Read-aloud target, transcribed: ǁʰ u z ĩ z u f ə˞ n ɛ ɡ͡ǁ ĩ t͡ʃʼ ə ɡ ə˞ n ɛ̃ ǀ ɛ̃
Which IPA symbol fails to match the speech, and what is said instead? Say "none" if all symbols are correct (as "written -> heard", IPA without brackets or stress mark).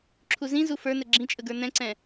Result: none